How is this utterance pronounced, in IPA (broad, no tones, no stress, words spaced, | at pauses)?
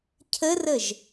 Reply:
cʰərəʒ